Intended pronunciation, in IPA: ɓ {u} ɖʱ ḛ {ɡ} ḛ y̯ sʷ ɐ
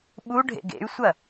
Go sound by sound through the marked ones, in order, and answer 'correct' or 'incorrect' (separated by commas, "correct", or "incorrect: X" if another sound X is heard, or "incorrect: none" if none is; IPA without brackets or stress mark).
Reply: correct, correct